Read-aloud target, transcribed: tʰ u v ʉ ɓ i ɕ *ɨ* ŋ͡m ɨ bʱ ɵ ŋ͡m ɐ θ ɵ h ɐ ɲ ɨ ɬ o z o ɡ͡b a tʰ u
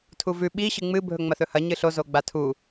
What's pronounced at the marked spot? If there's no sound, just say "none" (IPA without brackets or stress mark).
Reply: ɨ